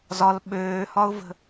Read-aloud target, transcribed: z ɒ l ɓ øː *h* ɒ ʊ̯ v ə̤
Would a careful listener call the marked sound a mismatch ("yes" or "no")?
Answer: no